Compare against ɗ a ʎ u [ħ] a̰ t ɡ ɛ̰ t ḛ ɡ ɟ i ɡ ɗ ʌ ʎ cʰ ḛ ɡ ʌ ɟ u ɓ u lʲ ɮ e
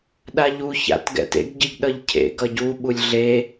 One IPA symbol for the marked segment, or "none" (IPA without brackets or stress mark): ç